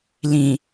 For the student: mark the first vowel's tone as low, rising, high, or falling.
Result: low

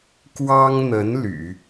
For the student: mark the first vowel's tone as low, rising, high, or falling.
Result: high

